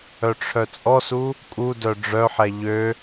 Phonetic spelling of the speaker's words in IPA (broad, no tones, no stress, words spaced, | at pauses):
œʈ͡ʂʰœt͡sʼɔsu | kʼudœ ɖ͡ʐœħɛ ʎø